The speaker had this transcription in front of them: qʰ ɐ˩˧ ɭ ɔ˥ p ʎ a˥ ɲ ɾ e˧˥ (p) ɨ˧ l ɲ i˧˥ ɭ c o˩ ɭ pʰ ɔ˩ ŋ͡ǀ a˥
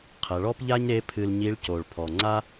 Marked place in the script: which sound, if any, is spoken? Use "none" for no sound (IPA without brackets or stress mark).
pʰ